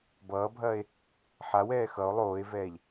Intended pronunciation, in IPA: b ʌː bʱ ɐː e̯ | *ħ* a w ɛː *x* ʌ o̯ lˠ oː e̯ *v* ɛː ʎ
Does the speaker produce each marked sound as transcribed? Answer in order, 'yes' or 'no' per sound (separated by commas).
yes, yes, yes